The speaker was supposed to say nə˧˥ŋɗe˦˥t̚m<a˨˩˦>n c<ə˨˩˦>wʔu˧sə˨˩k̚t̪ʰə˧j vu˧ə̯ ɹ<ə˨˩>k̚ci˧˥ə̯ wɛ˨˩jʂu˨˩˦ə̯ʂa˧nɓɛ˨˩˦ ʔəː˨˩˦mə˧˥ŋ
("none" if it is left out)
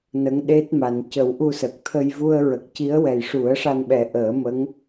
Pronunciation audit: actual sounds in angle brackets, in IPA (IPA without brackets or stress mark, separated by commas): a˨˩˦, ə˨˩˦, ə˨˩